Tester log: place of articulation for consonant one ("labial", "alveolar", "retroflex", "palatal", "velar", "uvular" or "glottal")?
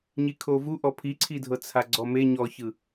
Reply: palatal